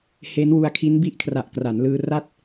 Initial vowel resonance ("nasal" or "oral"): oral